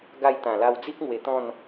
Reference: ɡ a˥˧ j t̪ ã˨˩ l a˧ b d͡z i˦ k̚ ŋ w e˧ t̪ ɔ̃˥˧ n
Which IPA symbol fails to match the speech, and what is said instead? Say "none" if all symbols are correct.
b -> w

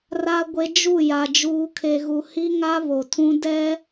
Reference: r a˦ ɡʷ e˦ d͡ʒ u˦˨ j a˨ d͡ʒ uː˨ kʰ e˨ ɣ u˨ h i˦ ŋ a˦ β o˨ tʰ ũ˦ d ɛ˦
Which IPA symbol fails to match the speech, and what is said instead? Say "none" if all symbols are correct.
none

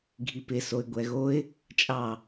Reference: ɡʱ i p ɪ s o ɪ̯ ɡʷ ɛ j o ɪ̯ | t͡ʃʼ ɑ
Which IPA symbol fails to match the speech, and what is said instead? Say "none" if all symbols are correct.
j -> ɣ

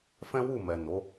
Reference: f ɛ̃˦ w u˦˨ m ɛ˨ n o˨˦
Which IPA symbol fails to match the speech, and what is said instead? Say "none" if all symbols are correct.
none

